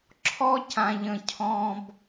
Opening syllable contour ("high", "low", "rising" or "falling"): high